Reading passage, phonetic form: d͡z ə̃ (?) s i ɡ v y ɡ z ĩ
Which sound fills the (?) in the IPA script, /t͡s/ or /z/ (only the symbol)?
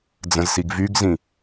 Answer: z